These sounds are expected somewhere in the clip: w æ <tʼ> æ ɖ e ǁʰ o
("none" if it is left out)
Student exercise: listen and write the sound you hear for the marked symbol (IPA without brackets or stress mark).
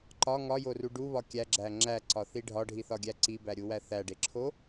θ